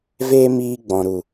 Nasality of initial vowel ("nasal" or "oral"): oral